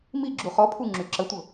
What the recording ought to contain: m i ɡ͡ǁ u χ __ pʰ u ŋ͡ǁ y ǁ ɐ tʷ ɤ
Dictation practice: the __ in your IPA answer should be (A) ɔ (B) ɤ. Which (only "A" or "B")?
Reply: A